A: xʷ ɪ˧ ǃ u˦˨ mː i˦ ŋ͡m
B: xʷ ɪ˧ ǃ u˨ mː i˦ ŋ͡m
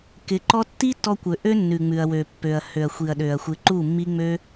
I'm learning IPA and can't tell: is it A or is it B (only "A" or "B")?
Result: A